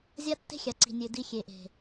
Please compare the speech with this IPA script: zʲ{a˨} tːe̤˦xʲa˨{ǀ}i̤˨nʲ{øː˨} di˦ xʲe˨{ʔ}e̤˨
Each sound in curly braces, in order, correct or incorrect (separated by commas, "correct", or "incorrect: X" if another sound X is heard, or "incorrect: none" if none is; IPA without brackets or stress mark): incorrect: a˦, correct, incorrect: ø˨, correct